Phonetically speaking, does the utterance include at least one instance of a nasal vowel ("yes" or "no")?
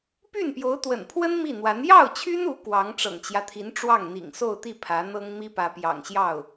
no